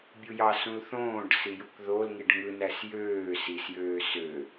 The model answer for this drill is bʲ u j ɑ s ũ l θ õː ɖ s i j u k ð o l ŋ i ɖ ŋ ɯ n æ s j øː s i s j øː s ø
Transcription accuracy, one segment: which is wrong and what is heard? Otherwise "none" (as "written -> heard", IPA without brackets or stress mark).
none